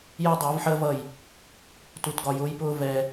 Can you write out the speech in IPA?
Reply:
jɜ˦dˤʊː˨˦vħəː˦vʌ˦˨j | tu˧tɡɒ˧jʊː˦jpʊː˦ vɛ˧

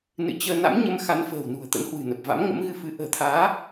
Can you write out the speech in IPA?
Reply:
nɨ̰˧˨ t͡ɕəː˧ na̰˧˥mɲə˨˦m xa˨˦nfə̤ː˨˩wnṳ˨˩ə̯ t̪ə̰˧˥nhwɨ̤˨˩nə˨˩p̚ va̰˧˥mŋə̰˧˥mɣɨ˧fɨ˨˦ ʔə̤ː˨˩t̪ʰaː˨˦

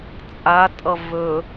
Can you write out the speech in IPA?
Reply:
t͡sʼatʼʌ vɵ

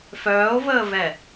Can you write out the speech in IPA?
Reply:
fœːo̯vəːvɛ

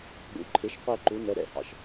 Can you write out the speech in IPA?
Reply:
ɠṵ˩˥ ǃʰɪ˩˥ʃqʷɛ˧ ǃu˩˥ nɛ˩˥ɾɛ̰˩˧˩hɑ̰˧ʃ

